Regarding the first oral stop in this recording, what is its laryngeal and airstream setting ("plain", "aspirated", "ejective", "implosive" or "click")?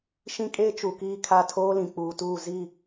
ejective